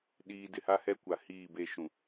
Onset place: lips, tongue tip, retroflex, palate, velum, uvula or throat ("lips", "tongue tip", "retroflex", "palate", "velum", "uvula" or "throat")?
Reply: tongue tip